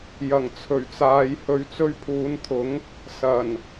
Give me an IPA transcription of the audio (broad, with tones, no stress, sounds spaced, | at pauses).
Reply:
j ɐ˨˩ ŋ t͡sʰ ɵ˨˩ ɥ t͡s aː˨˧ j h ɵ˨˧ ɥ t͡s ɵ˧ ɥ pʰ uː˨˧ n t̪ʰ ʊ˨˥ ŋ | s ɐ˨˩ n